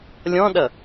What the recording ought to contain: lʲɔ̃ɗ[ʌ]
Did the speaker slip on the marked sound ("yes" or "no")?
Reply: no